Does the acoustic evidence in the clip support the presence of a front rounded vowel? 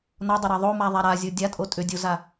yes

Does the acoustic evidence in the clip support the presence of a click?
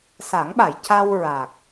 no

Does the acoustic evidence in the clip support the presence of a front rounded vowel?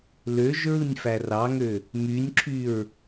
yes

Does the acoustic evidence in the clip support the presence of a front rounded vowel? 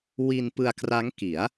no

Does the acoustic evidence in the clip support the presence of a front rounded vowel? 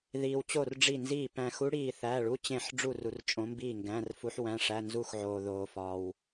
no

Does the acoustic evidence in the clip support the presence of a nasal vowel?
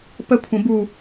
yes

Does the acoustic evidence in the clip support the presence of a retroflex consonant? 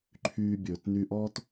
no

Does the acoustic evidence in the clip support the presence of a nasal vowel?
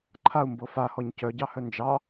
no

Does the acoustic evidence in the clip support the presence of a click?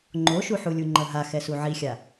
yes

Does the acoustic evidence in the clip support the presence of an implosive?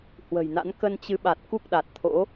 yes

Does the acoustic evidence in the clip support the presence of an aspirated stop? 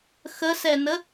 no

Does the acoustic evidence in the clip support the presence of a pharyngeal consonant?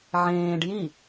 yes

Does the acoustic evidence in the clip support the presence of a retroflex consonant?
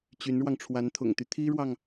yes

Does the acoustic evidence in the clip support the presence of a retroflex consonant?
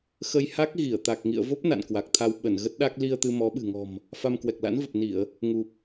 no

